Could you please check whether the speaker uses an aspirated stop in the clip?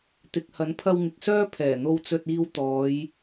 yes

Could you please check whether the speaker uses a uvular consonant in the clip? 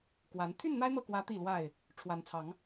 no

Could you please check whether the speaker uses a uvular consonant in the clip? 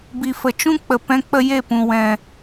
no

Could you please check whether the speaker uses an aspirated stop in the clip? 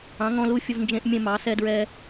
no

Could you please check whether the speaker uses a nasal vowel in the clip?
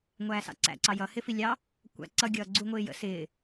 no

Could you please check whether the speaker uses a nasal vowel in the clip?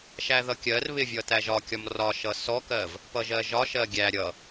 no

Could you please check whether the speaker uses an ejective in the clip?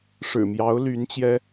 no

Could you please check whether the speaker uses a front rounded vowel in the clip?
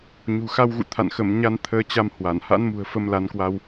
no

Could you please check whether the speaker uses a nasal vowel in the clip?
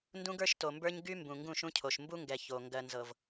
yes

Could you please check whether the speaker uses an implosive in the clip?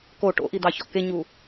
no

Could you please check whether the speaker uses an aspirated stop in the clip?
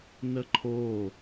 yes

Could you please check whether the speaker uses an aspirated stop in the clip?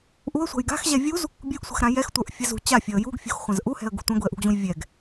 no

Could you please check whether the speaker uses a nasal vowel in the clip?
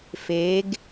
no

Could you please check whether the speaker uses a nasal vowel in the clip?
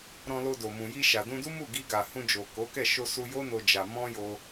yes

